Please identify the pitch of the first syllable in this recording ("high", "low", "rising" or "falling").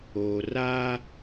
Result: low